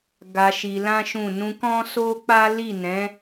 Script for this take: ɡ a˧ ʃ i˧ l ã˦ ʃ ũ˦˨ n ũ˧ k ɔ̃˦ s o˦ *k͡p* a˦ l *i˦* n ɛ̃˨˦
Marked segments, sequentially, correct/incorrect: correct, incorrect

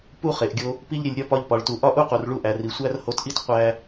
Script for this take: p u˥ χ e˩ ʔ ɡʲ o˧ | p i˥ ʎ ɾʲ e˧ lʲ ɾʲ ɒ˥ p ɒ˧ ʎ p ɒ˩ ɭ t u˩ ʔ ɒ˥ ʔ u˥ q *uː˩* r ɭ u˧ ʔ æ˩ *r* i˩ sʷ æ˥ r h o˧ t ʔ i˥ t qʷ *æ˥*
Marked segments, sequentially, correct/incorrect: incorrect, correct, incorrect

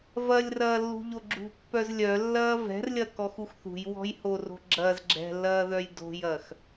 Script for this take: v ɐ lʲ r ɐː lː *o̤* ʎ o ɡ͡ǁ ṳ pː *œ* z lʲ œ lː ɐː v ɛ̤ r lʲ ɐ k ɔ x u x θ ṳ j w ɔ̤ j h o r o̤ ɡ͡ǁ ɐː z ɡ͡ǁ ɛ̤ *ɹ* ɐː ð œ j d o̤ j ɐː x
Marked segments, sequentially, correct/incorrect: incorrect, correct, incorrect

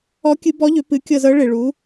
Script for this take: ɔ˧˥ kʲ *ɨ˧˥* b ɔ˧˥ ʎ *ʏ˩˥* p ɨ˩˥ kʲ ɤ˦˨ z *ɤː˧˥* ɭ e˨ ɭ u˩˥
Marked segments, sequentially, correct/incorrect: correct, correct, incorrect

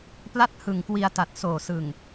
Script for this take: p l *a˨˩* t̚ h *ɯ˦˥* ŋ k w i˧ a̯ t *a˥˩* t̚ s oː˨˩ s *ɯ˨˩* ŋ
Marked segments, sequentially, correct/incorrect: incorrect, incorrect, incorrect, correct

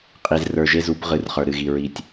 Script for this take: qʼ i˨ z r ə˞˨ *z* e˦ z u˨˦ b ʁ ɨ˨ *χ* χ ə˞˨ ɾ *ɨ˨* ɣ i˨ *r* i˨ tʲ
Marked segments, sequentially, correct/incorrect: incorrect, incorrect, correct, incorrect

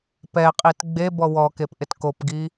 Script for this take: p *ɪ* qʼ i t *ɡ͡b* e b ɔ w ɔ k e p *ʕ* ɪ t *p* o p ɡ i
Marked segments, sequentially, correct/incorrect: incorrect, correct, incorrect, incorrect

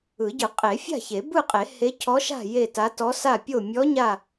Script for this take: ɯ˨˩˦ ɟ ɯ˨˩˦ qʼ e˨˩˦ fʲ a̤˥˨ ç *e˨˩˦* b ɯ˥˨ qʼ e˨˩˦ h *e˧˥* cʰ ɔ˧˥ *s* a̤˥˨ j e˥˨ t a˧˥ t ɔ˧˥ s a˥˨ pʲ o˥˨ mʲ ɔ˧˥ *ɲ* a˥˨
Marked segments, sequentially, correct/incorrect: correct, correct, incorrect, correct

